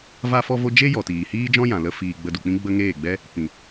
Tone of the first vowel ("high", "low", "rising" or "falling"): high